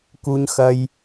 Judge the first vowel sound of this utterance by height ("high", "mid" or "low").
high